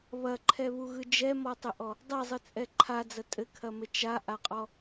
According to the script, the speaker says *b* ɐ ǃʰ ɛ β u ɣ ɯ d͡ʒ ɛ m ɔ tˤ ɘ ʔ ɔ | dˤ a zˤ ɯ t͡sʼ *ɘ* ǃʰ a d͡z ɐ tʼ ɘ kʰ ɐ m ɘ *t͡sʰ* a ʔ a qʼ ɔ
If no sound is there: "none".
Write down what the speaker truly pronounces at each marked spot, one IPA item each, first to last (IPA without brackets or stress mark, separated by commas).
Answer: β, ɛ, t͡ʃ